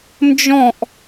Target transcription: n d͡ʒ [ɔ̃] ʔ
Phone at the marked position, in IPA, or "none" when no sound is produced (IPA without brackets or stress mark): ɔ̃